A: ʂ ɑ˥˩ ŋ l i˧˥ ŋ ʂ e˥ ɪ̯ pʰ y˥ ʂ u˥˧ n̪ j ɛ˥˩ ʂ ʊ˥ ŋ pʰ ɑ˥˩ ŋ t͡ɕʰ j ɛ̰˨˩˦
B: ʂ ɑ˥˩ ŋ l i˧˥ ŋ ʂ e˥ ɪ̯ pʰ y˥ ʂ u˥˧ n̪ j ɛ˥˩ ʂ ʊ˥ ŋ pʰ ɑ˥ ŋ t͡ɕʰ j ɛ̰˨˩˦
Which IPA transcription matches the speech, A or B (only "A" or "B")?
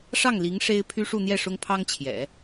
B